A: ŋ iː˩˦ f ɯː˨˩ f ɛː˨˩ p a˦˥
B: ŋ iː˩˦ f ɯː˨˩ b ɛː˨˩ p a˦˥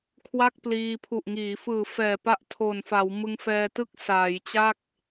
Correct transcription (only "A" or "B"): A